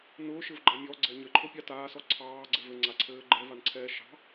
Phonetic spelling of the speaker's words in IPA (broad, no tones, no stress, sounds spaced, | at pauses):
n ʊː ʃ ɘ v ɡ͡ǃ a mʲ ɔ ɡ͡ǀ ɛ ɲ ɘ ǃʰ ʊ pʲ ɑ t aː s ɔ ǀʰ ɑː ɡ͡ǀ ɛ v ɘ ŋ͡ǀ a ǀʰ ɘː ɡ͡ǃ ɛ v a n ǀʰ ɛː ʃ ɑ̤